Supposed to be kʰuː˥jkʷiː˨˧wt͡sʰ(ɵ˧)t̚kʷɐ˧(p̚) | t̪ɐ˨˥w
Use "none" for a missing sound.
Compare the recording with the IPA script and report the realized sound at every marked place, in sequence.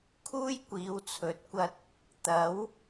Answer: ɵ˨˥, t̚

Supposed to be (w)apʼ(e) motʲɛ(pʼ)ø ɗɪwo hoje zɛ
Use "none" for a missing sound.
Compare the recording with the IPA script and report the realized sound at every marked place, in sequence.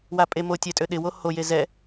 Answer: w, e, tʼ

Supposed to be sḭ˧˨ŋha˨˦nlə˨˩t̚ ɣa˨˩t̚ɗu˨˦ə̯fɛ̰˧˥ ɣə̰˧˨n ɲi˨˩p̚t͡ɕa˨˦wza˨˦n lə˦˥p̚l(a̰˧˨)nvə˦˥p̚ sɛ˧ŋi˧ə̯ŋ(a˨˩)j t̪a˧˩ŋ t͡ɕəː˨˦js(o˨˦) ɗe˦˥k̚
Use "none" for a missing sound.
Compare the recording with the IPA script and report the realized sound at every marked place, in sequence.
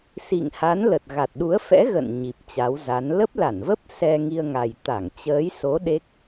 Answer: a˧˩, a˨˩, o˨˦

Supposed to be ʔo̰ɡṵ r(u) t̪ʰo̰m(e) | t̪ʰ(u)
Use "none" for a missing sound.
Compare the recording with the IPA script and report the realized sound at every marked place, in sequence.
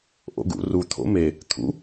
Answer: u, e, ṵ

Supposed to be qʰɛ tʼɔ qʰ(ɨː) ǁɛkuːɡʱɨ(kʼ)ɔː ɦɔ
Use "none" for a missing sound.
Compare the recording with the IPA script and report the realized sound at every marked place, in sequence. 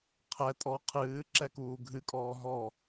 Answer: ɨː, kʼ

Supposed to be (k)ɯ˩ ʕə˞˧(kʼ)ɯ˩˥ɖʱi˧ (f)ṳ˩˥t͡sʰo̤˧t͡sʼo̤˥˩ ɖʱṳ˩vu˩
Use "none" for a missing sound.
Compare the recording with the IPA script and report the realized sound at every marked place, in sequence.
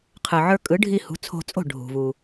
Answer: qʰ, kʼ, h

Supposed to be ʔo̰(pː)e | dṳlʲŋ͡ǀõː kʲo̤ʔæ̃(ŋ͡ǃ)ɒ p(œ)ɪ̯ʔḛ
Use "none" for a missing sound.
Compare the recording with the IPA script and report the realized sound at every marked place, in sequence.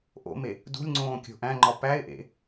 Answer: m, ŋ͡ǃ, æ

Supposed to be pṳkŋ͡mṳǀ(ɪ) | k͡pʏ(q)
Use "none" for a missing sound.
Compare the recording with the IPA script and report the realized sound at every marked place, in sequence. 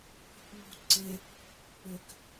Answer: ɪ, k

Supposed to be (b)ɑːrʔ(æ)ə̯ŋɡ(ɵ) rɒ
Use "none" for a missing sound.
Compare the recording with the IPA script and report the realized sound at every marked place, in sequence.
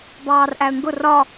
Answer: b, æ, ʊ

